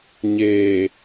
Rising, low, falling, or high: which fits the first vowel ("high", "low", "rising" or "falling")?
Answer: low